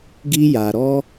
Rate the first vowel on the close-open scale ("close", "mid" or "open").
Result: close